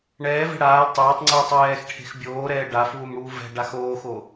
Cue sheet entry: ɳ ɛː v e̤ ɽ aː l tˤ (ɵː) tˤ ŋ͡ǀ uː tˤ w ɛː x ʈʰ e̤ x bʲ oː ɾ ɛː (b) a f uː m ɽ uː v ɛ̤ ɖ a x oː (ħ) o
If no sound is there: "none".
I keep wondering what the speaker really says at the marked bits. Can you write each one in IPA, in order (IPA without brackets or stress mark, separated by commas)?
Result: oː, ɖ, x